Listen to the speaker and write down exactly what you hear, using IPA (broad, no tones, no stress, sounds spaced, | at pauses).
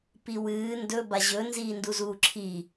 p i w ɨː n d ɵ b a ʑ ɵ n z iː n d u z uː ǁʰ i